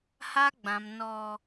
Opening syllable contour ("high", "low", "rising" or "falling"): high